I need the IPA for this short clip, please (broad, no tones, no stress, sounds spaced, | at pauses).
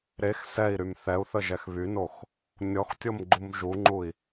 ɾ e x s ɛ i̯ ɾ y m θ ɛ u̯ θ ə ʒ ɛ x β y n o x | nʲ ɔ x tʲ o m ɡ͡ǃ u m ʒ u ŋ͡ǃ u i̯